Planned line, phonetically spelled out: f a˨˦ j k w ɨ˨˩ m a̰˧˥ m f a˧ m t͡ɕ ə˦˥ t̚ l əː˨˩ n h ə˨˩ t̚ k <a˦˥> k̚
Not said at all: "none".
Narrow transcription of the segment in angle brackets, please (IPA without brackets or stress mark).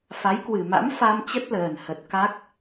a˦˥